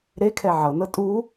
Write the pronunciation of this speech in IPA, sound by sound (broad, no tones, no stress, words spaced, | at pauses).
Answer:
ɾekʰɛ ʕɤnɤ tʼu